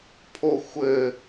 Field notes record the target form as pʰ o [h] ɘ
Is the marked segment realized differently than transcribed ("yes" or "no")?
yes